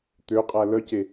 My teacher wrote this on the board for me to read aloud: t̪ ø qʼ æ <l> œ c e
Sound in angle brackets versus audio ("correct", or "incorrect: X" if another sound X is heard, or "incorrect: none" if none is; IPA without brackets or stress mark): correct